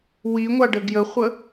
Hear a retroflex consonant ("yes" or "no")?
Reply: yes